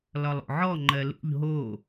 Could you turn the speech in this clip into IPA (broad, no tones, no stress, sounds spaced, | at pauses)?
l ɒ lˠ o̰ ʕ ɔ ŋ͡ǃ ɜ l ṵ ʎ ɦ o